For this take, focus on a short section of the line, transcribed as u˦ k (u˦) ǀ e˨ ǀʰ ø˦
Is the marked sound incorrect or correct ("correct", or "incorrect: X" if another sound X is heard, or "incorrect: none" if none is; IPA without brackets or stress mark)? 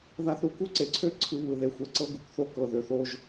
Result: correct